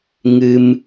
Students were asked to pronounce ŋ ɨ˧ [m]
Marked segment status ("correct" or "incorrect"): correct